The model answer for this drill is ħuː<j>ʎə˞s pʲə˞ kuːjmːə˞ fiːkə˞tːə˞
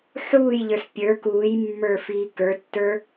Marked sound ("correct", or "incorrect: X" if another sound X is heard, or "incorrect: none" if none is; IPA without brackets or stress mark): correct